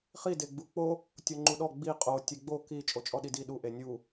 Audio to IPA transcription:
χ i d e ɡ͡b u k͡p o | tʲ o ŋ͡ǃ u ɗ ɔ ɡ͡b i qʼ o tʲ e ɡ͡b o k i t͡ʃʼ o t͡ʃʼ ɔ ɗ i d i ɗ u ʔ e nʲ u

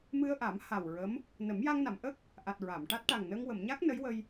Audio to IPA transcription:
m ɨ˧ ə̯ ʔ a˨˩˦ m h a˨˩ w ɹ ə˧˥ m | n ə˨˩˦ m j a˧ ŋ n a˨˩˨ m ʔ ə˦˥ k̚ | ʔ a˨˩ t̚ ɹ a˨˩˨ m ʈ a˦˥ t̚ ʈ a˨˩ ŋ n əː˧ ŋ w ə˨˩˨ m ɲ a˦˥ k̚ n ə˧˥ j w ə˧ j

